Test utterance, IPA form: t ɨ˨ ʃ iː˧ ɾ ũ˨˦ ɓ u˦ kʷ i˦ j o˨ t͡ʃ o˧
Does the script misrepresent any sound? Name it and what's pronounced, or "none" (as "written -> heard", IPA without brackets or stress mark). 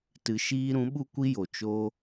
none